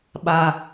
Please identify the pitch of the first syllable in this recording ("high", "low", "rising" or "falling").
low